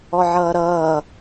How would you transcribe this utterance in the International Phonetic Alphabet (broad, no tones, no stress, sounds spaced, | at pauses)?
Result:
ɔ ʕ ʌː ɾ ʌː